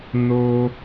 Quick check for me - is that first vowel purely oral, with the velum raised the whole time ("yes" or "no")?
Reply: yes